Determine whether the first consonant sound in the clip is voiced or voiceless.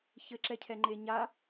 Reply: voiceless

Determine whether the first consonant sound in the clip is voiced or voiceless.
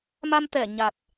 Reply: voiced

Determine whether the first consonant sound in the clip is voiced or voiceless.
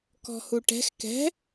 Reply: voiceless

